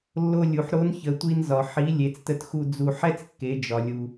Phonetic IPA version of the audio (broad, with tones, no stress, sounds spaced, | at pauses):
lː o˧ lʲ u˩ ħ ɾ o˧˥ n ç ə˩˧ tʷ i˧ n z ɒ˩ ħ i˩˧ lʲ e˩˧ t͡s t ə˧ t x u˧ d͡z u˧ ħ ɛ˥ t͡s kː e˩˧ d͡ʒ ɒ˩ lʲ u˩